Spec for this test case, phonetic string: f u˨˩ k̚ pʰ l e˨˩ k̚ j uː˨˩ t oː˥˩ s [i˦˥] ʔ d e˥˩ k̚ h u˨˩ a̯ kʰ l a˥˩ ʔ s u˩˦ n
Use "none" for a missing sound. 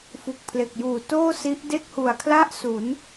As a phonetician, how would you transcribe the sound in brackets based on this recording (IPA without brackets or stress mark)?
i˦˥